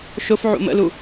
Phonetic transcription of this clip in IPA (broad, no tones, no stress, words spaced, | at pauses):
ʃʊfʕṵ mə̰lu